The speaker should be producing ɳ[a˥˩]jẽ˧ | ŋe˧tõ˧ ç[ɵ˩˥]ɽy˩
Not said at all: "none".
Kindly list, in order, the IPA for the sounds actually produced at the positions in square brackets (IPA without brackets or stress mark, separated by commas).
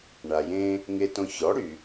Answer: a˩, ɔ˩˥